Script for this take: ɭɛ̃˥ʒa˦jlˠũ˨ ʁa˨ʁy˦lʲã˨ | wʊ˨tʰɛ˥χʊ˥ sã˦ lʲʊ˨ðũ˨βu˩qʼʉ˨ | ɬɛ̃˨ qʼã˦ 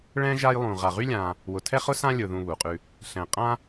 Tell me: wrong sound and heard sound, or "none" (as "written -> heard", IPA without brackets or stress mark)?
none